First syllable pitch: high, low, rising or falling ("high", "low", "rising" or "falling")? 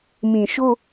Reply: low